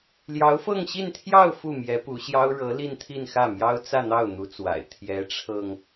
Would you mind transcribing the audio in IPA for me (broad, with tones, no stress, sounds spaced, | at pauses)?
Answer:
l j ɑ˧˥ ʊ̯ f ɤ˥˧ ŋ ɕ i˥˧ n t̪ʰ j ɑ˥˧ ʊ̯ f u˥˩ m j ɛ˧˥ p u˧˥ ɕ j ɑ˥ ʊ̯ ɻ ɤ˧˥ l i˥˧ n t̪ʰ i˥˧ n x ä˥˩ m j ɑ˥ ʊ̯ t͡s ä˥˧ n̪ ɑ˥˩ ʊ̯ n̪ u˧˥ t͡s w a̰˨˩ ɪ̯ t̪ʰ j ɛ˧˥ ʈ͡ʂʰ ɤ˧ ŋ